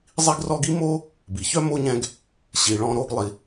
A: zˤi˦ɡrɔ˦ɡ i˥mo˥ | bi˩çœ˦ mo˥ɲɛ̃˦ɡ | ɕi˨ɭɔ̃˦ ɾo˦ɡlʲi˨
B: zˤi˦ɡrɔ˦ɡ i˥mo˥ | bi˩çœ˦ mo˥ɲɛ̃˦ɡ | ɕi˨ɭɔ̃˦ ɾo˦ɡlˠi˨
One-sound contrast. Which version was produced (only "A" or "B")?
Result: B